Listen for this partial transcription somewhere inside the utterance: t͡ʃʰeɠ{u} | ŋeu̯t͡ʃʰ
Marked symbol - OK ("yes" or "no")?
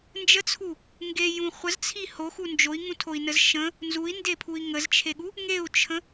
yes